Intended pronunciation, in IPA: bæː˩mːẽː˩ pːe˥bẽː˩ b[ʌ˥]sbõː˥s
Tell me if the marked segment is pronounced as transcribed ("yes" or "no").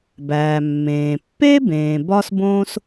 no